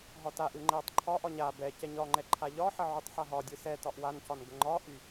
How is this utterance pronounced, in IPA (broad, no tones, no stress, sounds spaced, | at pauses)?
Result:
ɦ ɒ t a ʔ ɯ ŋ͡ǃ ɛ tˤ ǃʰ ɒ ʔ ɒ ɲ a b ɛ c ɛ ɲ ɒ ŋ͡ǃ ɛ ǃʰ a ʎ ɒ ħ ə ʕ y tˤ ħ a ɦ ɒ dʲ ɯ s ɛ t ɒ ʔ w a n c ɒ n ɡ ə ŋ͡ǃ ɒ ʔ y